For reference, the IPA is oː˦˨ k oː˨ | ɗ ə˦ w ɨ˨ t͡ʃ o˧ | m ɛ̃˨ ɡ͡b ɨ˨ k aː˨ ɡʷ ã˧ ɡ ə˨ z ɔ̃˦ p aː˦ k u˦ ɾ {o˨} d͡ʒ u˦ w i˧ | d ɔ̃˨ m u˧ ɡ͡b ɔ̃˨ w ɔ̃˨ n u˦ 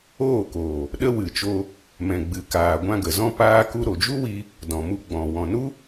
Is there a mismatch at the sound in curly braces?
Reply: no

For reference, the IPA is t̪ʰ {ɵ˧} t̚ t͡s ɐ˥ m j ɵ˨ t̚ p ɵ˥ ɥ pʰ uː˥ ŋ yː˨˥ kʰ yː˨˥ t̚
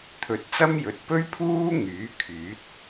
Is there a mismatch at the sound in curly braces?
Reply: yes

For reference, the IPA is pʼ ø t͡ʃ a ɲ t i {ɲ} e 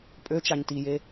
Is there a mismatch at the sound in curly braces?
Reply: yes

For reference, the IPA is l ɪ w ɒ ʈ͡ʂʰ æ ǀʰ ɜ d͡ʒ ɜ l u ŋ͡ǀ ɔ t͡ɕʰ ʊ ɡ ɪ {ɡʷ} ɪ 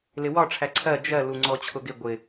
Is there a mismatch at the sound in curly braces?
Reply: no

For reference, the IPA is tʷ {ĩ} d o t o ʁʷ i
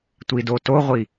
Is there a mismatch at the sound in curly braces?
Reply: yes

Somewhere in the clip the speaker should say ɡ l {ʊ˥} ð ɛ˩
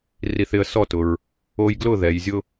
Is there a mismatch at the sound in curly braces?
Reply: yes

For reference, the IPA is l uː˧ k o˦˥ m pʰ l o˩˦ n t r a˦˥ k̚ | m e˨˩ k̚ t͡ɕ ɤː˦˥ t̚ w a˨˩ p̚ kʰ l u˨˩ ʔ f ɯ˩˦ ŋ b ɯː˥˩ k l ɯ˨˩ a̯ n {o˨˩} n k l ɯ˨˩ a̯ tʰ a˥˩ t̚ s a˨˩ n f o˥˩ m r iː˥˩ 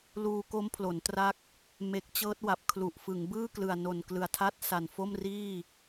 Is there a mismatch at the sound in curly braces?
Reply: no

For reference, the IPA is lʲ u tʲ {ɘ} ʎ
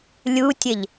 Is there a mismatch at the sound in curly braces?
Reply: no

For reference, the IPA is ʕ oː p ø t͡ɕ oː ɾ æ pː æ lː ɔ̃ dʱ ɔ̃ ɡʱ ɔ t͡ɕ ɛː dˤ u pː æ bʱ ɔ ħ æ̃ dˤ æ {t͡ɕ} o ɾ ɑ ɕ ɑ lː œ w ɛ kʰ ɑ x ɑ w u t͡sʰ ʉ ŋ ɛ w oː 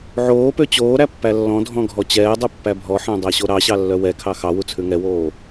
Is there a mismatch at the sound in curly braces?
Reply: yes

